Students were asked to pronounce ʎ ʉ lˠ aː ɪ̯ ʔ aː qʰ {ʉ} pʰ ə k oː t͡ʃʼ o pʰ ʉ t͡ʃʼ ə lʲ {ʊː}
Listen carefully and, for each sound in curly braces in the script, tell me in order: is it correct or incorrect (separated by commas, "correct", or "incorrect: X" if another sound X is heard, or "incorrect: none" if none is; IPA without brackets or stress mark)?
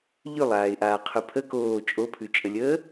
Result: correct, incorrect: əː